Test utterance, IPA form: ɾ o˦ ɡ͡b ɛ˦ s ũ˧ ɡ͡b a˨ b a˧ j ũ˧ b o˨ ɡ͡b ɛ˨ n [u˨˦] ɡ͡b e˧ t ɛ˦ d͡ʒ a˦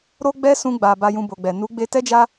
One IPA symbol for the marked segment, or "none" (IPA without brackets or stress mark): u˨˦